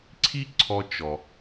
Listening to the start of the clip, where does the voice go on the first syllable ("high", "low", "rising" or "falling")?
high